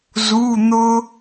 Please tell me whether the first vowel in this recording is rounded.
yes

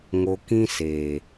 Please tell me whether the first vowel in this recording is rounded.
yes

